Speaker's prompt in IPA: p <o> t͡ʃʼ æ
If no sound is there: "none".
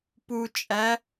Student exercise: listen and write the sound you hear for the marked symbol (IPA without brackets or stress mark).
u